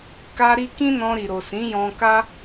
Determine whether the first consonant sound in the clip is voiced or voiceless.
voiceless